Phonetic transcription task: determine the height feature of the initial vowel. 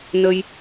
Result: mid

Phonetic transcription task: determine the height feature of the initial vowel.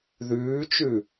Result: high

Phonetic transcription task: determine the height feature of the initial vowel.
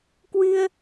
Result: high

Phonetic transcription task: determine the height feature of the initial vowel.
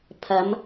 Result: low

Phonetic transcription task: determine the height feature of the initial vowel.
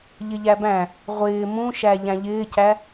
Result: high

